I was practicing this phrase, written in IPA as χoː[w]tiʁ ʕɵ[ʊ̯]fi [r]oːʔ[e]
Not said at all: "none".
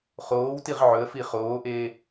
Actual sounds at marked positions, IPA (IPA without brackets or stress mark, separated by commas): w, ə̯, χ, eː